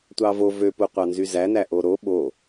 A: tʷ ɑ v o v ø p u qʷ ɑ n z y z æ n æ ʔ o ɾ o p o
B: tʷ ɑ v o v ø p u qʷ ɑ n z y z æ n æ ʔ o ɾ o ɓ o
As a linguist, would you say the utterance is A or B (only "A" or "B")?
B